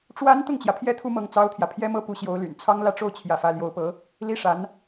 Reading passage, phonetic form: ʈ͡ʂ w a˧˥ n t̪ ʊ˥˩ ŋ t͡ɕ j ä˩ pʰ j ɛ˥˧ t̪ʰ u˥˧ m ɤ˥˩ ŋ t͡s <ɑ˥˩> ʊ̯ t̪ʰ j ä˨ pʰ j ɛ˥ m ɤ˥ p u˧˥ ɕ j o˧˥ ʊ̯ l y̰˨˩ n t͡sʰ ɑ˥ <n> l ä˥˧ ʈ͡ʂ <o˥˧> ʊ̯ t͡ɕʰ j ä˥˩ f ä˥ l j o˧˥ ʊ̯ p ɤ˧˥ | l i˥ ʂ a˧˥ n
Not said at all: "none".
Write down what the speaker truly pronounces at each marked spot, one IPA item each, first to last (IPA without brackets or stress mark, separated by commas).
ɑ˥, ŋ, o˥˧